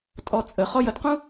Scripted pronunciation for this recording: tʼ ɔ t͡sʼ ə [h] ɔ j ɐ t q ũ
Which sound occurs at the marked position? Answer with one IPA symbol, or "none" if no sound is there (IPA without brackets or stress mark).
χ